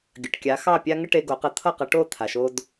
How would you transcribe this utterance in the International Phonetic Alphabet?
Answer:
ɡʲ ə˩ ʈ kʲ a˩˥ x ɑ˥˩ pʲ a˥ ŋ ə˥ ʈ e˧ ɡ o˩˥ q ə˩˥ t̪ʰ ʌ˥˩ q ʌ˩˥ ʈ o˥˩ t̪ʰ a˩ ʃ o˧ d

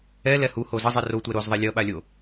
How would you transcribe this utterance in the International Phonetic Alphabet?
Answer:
ɛ l ɛ h u h o z ʌ zˤ i r o tʷ ɛ ɾ o z ðˤ ɛ lʲ ʌ ɓ a lʲ o

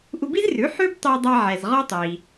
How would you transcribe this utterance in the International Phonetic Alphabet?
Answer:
ʔ u˧ b i˥ z r ʉ˩˥ ħ ʉ˥ b tˤ i˧ dˤ a˧ ʕ ɛ˩ z ʁ ɔ˥ tˤ iː˩

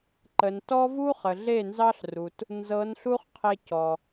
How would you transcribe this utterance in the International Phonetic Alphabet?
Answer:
ǃ ə˨ n t ɔ˦ v u˦ χ ə˨ ɮ e˦˨ n z ɑ˦ ɬ r u˨ t | n z ɤ˨˦ n ɬ u˦ χ qʰ e˧ c ɔ˨

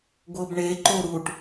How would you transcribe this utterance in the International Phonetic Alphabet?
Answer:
ɡʷ ɤ b ɳ e ǃ o ɾ u ʈ

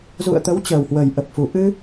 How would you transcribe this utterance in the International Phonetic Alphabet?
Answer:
z ṵ˧˨ ə̯ t̪ ə˨˦ w t͡ɕ əː˨˩ w h w ə˨˩ j ʔ ə˨˩ p̚ f u˨˩ ʔ ɨ˧

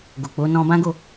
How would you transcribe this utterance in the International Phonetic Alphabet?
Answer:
ɡ o˨ k͡p o˨˦ n ɔ̃˧ b ã˦ ɡ o˦˨

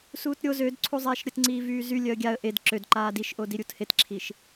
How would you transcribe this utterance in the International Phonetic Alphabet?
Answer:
s uː t ɾʲ o z ø d ǀʰ u zˤ ɛː ʃ ɾʲ ə t ŋ͡ǀ iː v yː z y lʲ œ ə̯ ɡʲ a ə̯ ʔ e d ǁ ø d ǃ aː d i ʃ ʔ o d i ɾʲ u t h e t ǁʰ i ʃ

